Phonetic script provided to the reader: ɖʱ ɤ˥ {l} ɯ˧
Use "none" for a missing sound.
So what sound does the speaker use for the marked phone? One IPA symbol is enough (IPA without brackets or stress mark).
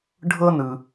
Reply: n